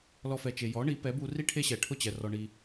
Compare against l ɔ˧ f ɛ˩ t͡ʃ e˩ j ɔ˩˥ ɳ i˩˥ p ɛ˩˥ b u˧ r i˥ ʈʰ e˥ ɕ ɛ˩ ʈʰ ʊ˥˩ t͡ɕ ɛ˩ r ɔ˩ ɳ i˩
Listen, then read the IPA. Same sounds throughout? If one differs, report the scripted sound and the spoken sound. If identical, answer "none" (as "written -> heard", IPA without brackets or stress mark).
none